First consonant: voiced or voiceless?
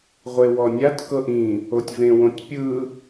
voiced